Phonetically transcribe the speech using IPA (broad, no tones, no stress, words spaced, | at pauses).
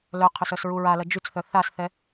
lœqʰʏs œsɹuɹalɐ d͡ʒyt͡sθœ θasθɛ